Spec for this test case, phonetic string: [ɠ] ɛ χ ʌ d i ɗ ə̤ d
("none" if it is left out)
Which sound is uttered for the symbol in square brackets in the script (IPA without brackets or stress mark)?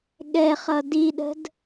ɠ